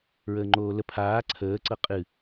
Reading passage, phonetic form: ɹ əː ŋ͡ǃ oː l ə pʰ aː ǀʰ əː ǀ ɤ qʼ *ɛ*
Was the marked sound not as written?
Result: yes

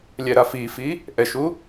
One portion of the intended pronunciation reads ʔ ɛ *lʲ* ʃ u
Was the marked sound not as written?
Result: yes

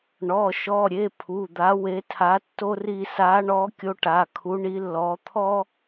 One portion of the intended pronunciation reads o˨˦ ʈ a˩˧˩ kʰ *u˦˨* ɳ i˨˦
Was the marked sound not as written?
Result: yes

